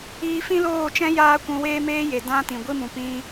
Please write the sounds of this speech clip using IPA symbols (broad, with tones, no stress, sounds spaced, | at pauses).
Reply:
iː˧ f ĩ˦ l oː˦˨ t͡ʃ ɛ̃˦ j aː˦ kʷ ũ˧ w eː˦ m eː˦ j e˨ d ã˦ t ĩ˨ ɡʷ i˦ m ũ˨ p ĩ˧